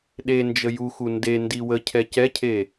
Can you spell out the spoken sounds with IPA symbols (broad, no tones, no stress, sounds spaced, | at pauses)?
ɗ e n d͡ʒ ə j u x u n d e n d i w ə cʰ ɛ c ɛ cʰ e